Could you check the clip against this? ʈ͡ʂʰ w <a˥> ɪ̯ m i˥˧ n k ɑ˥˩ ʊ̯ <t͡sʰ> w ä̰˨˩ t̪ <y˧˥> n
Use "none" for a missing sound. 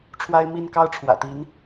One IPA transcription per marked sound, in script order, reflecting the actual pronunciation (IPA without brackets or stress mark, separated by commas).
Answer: a˥, ʈ͡ʂʰ, i˧˥